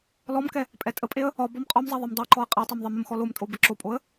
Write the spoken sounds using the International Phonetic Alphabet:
lɔmkɛ | pʼɛtʼəpʼeə̯ | ɒ bɔmqʼɒmzˤɛ ðˤemdˤɛǃɔə̯ qʼetˤem ðˤeməmxɔ lomtʼo bəǁopʼoə̯

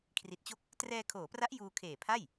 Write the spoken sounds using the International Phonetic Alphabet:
kʰri˨˩t̚t͡ɕo˥˩k̚ | trɛː˧kʰoː˩˦pra˦˥ʔ juː˧kʰeː˨˩pʰa˥˩j

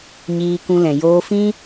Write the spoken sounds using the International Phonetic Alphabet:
ɲiː˧kũ˧lɛ̃˨ joː˧fĩ˦

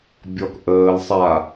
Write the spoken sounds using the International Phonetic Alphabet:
bʲɔk ʔəːl sˤa

